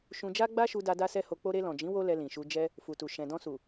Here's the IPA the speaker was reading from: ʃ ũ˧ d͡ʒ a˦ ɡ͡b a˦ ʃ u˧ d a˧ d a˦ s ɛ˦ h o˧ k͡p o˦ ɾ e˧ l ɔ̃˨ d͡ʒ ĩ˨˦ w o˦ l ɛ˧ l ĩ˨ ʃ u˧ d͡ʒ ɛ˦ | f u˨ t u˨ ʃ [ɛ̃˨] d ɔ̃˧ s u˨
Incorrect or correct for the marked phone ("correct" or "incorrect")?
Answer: correct